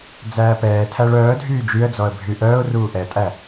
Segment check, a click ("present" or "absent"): absent